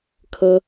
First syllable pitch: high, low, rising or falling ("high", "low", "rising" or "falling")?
high